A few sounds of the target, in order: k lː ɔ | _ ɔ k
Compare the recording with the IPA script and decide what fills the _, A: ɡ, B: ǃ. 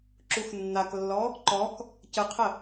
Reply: B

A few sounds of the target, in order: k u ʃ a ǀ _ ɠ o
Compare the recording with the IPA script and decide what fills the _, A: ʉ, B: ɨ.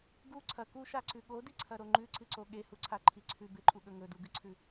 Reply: A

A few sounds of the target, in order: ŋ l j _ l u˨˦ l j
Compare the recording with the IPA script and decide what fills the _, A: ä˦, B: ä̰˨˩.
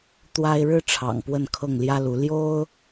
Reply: A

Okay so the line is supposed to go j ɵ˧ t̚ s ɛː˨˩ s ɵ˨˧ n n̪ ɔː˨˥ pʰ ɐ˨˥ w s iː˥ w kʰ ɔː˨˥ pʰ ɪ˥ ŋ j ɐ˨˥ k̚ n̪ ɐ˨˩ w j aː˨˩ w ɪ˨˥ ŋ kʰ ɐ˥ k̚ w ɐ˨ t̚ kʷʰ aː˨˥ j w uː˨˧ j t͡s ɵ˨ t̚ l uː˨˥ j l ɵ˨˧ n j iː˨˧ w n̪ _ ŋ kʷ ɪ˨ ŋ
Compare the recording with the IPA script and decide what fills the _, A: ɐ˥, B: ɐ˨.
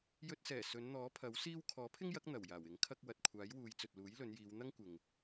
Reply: A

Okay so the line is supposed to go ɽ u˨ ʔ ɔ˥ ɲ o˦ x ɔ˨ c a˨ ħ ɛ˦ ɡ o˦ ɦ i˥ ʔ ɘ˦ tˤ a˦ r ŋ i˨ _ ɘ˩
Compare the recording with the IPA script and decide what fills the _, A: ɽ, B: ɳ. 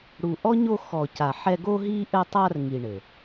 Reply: B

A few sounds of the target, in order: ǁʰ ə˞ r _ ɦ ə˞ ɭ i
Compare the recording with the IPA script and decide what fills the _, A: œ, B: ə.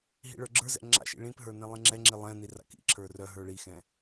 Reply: A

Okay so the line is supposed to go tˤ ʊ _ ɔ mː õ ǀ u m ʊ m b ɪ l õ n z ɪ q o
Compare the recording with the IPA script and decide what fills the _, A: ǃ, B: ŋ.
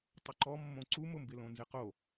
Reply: A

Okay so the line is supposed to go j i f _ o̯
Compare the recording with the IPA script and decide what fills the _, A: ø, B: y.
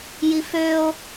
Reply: A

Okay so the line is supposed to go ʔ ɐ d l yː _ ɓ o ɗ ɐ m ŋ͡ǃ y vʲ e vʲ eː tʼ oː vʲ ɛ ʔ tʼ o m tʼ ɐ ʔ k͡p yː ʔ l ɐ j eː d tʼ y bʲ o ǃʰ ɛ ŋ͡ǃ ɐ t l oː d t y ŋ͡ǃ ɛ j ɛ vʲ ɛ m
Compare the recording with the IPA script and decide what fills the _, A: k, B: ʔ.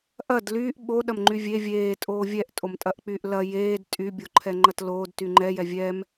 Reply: B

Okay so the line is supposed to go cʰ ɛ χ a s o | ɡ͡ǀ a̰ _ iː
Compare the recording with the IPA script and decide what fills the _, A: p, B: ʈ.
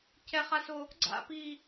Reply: A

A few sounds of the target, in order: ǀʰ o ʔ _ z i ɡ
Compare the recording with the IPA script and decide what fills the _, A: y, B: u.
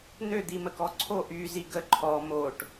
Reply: A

